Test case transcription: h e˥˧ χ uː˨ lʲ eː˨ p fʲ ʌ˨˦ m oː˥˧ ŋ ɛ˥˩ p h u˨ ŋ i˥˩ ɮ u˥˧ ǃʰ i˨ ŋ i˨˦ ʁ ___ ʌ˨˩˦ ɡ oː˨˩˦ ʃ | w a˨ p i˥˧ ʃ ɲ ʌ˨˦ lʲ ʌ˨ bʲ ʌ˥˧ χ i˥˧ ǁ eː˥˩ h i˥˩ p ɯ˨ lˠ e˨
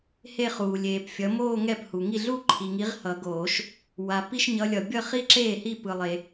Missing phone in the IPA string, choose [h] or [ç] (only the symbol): h